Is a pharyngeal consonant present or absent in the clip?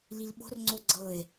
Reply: absent